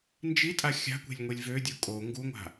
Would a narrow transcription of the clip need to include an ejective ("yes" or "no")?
yes